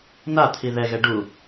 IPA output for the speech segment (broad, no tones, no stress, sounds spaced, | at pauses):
n a t̪ʰ i ð ɛ ɣ ɛ ɖ u